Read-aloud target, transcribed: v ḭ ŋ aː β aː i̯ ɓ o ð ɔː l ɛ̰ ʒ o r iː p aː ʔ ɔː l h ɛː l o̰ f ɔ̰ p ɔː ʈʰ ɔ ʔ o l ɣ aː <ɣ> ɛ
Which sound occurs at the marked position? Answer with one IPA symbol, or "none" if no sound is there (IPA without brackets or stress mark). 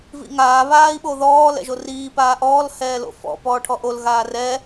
r